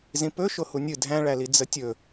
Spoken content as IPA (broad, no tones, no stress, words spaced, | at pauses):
zĩpɵ ʃohunʲɨ dʱæ̃ɭæli d͡zətʲɵ